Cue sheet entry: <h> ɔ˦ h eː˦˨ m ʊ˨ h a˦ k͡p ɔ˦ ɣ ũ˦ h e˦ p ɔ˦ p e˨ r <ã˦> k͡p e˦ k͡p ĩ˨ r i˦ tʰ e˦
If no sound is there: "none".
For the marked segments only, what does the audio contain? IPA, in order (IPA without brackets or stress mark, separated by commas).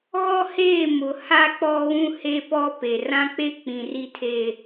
ɣ, ã˦